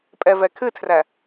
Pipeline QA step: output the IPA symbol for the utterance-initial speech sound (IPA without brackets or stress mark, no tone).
pʼ